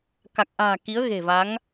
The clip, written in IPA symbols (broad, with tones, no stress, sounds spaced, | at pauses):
k a˨˩ k̚ ʔ a̤ː˨˩ k i˨˦ ə̯ ɣ e̤˨˩ v a˨˦ ŋ